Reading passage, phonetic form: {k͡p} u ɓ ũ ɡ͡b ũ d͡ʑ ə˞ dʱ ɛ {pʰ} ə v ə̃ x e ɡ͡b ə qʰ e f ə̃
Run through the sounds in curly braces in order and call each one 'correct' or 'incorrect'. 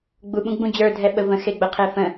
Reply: incorrect, incorrect

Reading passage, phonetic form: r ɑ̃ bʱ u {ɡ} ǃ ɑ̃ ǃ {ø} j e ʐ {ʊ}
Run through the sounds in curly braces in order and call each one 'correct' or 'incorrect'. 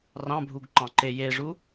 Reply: correct, incorrect, incorrect

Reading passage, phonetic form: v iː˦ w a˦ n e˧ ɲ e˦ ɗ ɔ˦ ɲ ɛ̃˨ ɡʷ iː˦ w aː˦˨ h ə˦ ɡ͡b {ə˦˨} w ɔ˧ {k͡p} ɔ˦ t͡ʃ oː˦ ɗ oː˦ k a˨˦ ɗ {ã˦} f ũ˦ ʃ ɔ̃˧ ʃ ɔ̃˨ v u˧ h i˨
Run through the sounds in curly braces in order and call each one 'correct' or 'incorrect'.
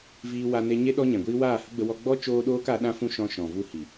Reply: incorrect, incorrect, correct

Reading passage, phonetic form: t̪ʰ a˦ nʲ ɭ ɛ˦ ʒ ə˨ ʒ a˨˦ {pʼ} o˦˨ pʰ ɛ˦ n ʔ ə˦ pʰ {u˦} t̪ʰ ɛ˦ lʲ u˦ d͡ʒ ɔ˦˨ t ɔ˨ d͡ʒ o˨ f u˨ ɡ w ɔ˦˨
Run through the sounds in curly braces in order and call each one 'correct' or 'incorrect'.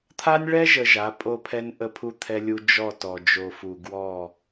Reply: correct, correct

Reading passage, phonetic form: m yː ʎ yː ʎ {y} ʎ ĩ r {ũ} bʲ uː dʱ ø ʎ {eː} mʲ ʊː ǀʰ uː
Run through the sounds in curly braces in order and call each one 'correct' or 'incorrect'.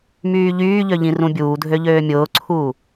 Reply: incorrect, correct, incorrect

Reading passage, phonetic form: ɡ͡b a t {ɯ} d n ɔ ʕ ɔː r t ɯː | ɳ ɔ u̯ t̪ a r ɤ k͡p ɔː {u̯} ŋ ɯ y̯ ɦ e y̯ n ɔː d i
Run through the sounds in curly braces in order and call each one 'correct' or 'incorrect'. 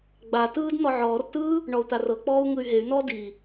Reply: incorrect, correct

